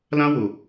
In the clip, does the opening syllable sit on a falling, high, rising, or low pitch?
high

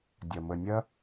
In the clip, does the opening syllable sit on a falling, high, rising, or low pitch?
low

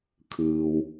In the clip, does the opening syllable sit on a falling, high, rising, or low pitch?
low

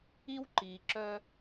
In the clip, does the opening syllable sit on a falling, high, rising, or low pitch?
high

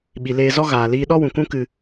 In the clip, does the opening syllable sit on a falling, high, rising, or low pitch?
low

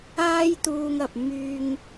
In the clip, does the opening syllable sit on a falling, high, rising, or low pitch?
high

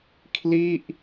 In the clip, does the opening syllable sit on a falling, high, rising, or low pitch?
falling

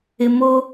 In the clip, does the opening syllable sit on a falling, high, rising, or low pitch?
high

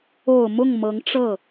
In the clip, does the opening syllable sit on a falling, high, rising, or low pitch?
low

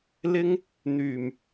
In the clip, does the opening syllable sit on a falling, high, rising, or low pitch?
high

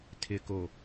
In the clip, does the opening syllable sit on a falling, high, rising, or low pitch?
low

